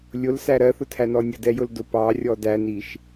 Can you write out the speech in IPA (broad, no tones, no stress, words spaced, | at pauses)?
lʲʊlsæ ɾɜθʊtʰænɔ nʲədɛjʊldʊ pɑrʲɔ dæniʃ